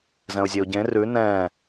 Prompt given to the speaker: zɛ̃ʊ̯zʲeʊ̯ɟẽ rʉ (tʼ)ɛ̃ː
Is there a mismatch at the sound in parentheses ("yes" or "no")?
yes